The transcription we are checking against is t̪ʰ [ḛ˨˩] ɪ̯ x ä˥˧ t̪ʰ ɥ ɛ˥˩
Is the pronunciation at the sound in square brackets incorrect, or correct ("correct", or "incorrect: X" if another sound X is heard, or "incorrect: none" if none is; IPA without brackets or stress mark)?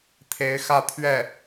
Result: incorrect: e˧˥